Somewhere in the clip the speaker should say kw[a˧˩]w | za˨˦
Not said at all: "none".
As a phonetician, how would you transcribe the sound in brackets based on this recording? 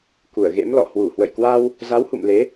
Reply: a˧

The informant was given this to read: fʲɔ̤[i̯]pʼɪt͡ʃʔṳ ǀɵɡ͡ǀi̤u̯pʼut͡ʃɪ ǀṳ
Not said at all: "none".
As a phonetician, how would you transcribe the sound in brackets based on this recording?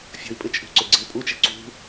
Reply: i̯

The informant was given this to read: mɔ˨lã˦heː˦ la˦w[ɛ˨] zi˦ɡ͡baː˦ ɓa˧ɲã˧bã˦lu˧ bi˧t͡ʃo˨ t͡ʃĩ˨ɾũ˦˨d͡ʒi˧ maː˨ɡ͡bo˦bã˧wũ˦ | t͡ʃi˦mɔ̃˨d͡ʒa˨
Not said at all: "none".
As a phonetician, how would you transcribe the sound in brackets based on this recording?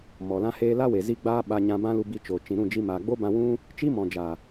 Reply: e˨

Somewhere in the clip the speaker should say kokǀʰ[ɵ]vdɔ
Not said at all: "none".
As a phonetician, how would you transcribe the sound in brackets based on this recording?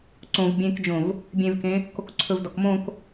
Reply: ɵ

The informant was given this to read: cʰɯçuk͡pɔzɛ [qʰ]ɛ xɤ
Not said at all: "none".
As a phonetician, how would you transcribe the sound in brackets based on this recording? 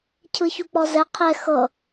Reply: qʰ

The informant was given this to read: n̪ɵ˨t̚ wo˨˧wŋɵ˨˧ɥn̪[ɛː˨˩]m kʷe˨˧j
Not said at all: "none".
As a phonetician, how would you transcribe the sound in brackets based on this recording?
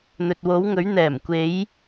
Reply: ɛː˨˩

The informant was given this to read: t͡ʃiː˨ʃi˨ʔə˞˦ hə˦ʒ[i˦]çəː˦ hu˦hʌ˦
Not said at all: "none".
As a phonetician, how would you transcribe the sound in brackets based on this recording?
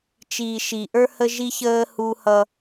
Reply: i˦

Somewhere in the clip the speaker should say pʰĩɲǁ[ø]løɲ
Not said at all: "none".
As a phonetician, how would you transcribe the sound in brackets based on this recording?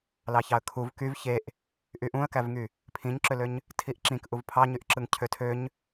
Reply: ø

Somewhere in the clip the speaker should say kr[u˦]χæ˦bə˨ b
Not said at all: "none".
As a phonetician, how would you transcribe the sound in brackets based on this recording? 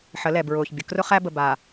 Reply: ʊ˦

